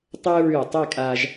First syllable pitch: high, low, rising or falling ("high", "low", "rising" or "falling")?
high